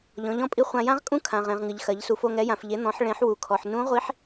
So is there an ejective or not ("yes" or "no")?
yes